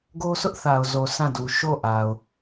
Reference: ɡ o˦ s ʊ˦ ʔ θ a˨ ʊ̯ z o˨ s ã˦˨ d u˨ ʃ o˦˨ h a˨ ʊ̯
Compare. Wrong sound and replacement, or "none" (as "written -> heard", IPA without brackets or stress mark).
h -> ʔ